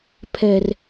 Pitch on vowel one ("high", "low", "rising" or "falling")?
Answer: low